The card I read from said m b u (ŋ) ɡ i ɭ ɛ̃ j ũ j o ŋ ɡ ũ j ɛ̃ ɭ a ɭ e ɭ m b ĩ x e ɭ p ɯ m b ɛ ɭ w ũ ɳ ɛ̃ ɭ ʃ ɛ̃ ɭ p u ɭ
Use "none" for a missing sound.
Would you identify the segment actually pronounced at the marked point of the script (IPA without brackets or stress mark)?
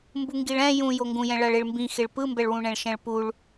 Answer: ŋ